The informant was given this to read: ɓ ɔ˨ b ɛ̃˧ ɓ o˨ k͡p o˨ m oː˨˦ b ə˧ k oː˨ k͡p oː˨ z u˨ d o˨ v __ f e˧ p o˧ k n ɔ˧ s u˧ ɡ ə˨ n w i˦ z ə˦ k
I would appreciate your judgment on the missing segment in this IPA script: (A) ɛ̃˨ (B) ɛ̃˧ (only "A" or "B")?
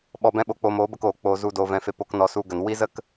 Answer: B